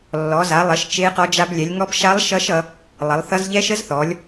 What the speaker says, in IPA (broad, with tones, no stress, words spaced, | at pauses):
lːɔ˩˧za˩˧lˠʌ˩˧ʃ t͡ʃe˦˥qɔ˦˥d͡ʒa˦˥b lʲɛ˩˧lʲŋɔ˦˥b ʃa˦˥lˠ ʃʌ˦˥ʃ ʌ˩˧ | lˠʌ˩˧lˠθʌ˦˥z ʎɛ˦˥ʃə˦˥zθɔ˩˧lʲ